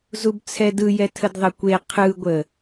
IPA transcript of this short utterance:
zubt͡sʰɛdɯjɛ tʰədðˤəkʷe qʰɯɡʷə

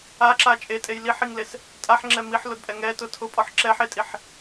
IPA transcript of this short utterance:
aǁa t͡ʃʼetʼej liħiŋles | tʼaħŋ͡ǁɛ miħlʊdpʼɛ ŋɛtʊ tʰʊpʼɔħ ǁɛħetʼiħ

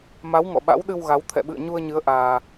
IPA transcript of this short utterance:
ma˨˦wŋɔ̰˧˨ ɓa̰˧˥wɗɨ˧wɣa˨˦w t̪ʰɛ̰˧˨ɓɨ̰˧˨ə̯ɲu˧ə̯ɲɨ˨˦ə̯ ʔaː˧

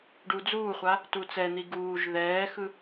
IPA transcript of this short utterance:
ɖud͡zuːχʷa | tut͡sɛn̪i ɡuːʒ ðɛːxɯ

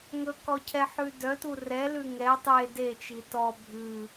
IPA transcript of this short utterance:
ŋɵkɔcʰɛħʉ dœtu rɛlʉ ŋɛ tˤe det͡ʃi tɔ bʱʉ

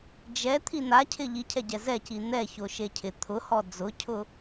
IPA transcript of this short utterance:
d͡ʒɛ t̪ʰin̪acʰɪ ʎicʰɛɟɛ zɛci n̪ɛ çoʃecʰɪ t̪ʰʊhɔ d͡zʊcʰʊ

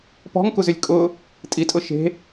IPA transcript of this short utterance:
pɔ̤ŋkuzʏlʲ kʼʊ | tʼitʼʊ ʃe̤

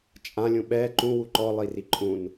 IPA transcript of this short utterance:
t͡ʃʼãlʲũ ɓɛ ǃũwu ǃɔlˠiri ǃʼũn

